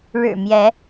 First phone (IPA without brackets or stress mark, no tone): ɻ